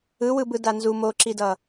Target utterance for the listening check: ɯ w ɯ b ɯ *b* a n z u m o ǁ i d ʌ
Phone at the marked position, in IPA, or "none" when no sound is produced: d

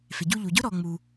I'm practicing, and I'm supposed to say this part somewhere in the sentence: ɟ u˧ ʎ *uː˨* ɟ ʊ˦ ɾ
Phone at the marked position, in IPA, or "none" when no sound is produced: u˨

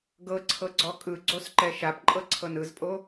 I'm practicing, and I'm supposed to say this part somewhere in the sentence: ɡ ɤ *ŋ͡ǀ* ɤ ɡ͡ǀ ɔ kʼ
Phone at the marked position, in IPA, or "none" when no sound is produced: ǀʰ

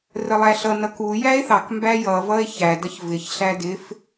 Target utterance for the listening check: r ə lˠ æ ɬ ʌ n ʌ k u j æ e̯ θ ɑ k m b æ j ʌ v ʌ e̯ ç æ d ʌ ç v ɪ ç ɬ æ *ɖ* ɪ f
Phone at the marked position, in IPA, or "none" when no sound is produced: d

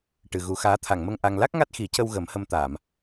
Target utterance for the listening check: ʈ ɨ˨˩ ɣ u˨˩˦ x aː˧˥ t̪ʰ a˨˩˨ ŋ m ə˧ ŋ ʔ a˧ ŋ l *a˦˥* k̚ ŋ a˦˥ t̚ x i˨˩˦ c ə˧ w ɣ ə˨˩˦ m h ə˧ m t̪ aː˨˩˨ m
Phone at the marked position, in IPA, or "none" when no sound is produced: a˦˥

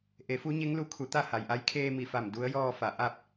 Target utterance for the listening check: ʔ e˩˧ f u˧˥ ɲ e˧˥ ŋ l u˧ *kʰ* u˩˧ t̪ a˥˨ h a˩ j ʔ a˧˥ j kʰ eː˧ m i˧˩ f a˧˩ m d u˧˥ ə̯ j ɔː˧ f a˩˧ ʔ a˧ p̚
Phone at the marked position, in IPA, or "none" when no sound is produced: kʰ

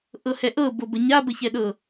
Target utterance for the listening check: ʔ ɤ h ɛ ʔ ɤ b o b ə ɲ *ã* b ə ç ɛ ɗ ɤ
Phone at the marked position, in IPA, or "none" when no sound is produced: a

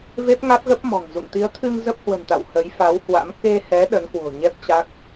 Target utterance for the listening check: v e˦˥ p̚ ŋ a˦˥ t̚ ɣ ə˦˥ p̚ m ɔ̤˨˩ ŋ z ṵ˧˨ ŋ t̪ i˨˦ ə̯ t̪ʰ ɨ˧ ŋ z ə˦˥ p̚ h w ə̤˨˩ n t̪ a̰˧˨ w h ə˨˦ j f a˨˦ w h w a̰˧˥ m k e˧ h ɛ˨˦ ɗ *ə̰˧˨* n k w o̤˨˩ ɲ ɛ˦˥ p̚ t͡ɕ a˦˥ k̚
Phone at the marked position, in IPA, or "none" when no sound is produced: ə˨˦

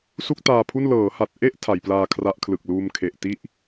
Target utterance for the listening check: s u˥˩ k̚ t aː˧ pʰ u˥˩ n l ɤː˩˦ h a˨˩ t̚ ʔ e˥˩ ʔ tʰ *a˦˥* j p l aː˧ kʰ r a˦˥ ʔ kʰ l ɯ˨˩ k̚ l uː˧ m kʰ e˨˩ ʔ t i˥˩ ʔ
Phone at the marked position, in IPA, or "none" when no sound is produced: a˩˦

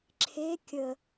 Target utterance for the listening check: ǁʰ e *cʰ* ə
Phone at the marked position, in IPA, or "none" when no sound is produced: kʲ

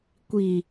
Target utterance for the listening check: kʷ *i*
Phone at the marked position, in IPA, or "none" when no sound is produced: i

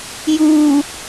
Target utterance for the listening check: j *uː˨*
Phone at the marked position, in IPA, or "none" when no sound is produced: uː˨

